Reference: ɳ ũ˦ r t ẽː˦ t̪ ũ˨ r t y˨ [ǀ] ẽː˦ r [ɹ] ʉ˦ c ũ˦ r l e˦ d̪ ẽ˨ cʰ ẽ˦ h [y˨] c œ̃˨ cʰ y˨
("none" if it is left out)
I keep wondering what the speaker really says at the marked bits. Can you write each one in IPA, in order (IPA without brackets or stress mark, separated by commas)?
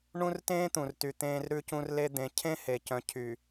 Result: t̪, ɾ, e˨